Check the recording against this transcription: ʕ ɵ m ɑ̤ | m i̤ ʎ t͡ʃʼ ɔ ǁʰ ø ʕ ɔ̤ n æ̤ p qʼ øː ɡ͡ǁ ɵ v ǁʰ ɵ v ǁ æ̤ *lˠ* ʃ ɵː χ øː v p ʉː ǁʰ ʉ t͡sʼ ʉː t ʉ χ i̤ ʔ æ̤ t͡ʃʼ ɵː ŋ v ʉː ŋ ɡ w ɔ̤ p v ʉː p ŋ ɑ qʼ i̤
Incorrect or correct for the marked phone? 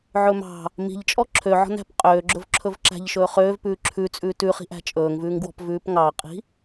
incorrect: ʎ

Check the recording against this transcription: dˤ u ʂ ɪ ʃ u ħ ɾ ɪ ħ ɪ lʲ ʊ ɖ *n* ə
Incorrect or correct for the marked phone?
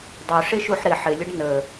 correct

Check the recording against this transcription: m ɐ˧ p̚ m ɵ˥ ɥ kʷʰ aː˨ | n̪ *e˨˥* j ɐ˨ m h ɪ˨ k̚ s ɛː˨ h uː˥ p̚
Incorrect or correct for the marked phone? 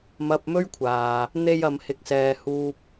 incorrect: e˧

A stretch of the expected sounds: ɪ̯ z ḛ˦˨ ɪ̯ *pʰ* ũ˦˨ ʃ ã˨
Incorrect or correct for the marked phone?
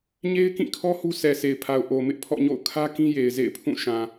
correct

